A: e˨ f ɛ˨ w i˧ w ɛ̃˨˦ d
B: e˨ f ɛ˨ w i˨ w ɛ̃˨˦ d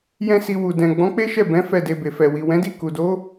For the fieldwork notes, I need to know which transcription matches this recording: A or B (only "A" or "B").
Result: B